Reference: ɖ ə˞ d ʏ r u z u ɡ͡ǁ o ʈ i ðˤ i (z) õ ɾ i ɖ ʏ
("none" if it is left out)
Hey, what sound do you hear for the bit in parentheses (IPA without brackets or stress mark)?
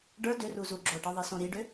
s